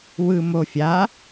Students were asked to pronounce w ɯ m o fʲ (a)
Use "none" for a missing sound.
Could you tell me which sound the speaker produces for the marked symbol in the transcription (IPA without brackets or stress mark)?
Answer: a